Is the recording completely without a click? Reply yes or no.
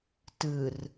yes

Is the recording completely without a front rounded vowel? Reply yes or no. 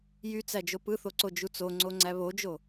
no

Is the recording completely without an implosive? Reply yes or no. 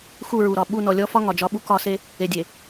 no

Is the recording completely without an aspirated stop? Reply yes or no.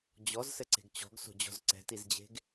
yes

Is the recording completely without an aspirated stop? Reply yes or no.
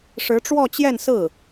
yes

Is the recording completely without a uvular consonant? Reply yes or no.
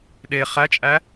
no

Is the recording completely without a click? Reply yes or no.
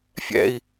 yes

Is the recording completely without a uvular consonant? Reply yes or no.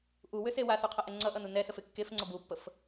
no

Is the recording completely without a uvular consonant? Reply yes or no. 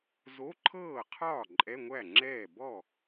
no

